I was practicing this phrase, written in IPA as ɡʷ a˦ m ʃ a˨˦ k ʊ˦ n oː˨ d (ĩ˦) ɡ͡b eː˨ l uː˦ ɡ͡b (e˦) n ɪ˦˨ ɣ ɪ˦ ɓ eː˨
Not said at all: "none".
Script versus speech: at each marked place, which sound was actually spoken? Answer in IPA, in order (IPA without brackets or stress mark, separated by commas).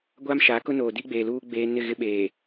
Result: i˦, eː˦